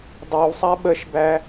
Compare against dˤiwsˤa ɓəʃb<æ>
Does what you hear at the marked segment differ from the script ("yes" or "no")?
no